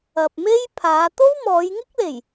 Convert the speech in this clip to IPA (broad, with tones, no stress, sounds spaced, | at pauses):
ɐ˨ p̚ m e˥ j pʰ aː˨˧ t̪ o˥ w m ɔː˨˧ j ŋ ɪ˥ k̚ l e˨˩ j